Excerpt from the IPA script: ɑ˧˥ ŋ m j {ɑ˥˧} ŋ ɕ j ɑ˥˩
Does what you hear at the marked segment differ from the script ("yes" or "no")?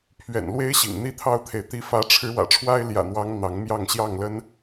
no